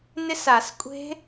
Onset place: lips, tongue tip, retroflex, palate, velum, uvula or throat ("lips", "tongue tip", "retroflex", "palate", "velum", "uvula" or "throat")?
tongue tip